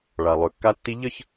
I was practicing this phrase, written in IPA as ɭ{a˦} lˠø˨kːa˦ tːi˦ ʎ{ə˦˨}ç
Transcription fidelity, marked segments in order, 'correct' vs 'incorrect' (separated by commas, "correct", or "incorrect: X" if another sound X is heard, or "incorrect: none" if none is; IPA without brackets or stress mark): incorrect: a˨, correct